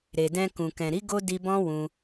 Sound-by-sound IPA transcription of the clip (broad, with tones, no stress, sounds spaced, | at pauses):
ɾ e˨ d ɛ̃˧ k ũ˨ k ɛ̃˨ ɾ i˨˦ ɡ o˦ d i˧ b ɔ̃˦ w ũ˧